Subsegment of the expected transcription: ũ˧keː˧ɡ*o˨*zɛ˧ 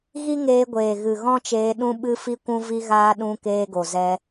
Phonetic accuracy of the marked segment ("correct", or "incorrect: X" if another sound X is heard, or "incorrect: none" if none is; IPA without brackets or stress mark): correct